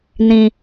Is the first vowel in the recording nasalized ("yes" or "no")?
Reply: yes